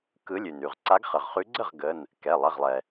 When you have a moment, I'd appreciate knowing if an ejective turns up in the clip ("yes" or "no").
no